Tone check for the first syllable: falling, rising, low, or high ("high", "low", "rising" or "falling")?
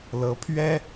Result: rising